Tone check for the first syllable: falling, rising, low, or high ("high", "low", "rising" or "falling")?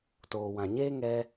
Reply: low